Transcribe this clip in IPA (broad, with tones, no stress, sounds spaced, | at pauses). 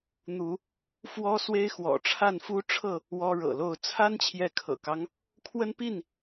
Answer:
n̪ u˨˦ | f w ɔ˦ s w e˦ ɪ̯ x w ɔ̰˨˩ ʈ͡ʂʰ a˥˨ n f u˦ ʈ͡ʂʰ ɤ˥˨ | w ɔ˦ ɻ ɤ̰˨˩ l o˥˨ ʊ̯ t͡sʰ a˦ n t͡ɕʰ j ɛ˨˦ kʰ ɤ̰˨˩ k ɑ˦ ŋ | kʰ w ə˦ n p i˥˨ n